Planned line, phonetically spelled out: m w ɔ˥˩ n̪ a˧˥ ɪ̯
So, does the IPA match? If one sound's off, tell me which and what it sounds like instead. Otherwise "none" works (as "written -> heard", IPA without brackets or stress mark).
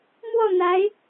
none